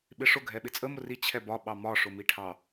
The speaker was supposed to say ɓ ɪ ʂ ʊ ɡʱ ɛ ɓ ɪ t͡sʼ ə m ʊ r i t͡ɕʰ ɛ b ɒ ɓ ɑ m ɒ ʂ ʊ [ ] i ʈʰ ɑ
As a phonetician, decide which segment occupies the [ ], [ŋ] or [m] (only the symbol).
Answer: m